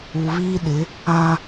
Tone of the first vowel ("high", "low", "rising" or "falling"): low